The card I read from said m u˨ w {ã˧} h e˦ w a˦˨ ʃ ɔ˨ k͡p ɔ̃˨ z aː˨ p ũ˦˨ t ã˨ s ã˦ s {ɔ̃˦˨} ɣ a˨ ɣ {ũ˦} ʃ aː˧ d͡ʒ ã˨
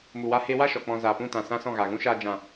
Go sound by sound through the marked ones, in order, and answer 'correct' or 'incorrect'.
incorrect: a˧, correct, correct

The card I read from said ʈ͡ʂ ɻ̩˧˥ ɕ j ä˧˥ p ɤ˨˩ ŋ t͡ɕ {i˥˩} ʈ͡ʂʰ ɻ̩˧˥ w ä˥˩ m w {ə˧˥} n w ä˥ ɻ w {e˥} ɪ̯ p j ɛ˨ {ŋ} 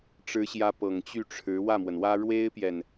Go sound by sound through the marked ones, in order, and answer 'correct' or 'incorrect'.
incorrect: y˥˩, incorrect: ə˩, correct, incorrect: n

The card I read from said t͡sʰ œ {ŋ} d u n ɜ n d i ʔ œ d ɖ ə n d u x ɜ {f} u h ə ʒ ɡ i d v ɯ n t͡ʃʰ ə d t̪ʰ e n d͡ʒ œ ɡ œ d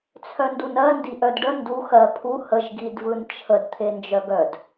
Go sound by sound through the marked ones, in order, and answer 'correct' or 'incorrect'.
incorrect: n, incorrect: pʰ

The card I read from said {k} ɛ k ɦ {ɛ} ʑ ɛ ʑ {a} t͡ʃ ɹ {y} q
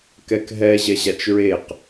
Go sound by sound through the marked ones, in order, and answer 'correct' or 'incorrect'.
correct, correct, correct, incorrect: e

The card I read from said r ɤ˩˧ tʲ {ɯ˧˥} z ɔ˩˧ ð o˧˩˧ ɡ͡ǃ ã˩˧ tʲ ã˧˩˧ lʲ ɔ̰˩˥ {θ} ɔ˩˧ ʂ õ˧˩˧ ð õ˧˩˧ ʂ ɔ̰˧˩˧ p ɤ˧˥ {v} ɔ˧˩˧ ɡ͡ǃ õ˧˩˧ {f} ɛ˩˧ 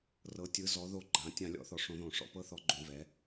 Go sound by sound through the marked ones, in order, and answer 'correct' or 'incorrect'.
incorrect: ɯ˩˧, correct, incorrect: θ, incorrect: v

